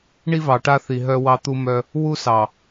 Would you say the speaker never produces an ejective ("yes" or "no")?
yes